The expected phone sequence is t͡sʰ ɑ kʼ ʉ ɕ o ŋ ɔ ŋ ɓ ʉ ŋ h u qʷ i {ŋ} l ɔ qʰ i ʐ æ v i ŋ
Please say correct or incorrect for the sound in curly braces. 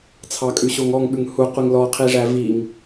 correct